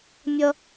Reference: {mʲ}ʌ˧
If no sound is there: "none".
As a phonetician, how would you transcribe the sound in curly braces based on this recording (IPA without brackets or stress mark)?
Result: mʲ